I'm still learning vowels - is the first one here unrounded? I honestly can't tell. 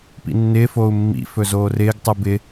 yes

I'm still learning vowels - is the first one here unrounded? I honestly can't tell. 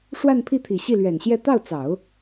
yes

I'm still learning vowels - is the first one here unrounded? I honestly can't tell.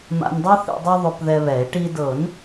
yes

